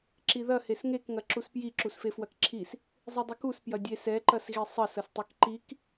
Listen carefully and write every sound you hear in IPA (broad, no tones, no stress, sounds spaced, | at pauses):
ǁ i ð ɐ h e s ŋ e k ŋ ɐ ǁ u s p j i ǁ u s f e f w ɐ k ǁʰ i s | zˤ e dˤ u k u s p j ɐ dʲ e s ɛ ǃ ɐ s ɣ i sˤ ɐ s ɐ s tˤ ɛ k ǃ i k